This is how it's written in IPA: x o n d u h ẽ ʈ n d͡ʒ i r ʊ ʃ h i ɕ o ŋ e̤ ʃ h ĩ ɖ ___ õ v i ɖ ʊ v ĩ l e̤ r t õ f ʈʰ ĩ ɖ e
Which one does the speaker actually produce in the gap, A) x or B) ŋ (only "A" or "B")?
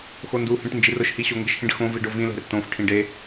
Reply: A